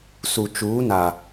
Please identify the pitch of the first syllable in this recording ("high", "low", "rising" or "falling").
low